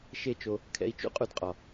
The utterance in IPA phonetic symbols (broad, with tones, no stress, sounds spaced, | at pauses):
ʃ e˦ t͡ʃ o˧ | kʰ ɛ̰˧ i̯ t͡ʃ ṵ˦ qʼ u˧ d qʼ ɒ˨